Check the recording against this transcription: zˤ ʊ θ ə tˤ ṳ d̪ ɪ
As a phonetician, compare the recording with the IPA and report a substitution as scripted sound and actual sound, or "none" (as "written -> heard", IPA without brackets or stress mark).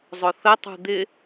none